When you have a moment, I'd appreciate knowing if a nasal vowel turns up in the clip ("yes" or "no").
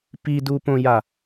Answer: yes